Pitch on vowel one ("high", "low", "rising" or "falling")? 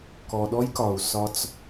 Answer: low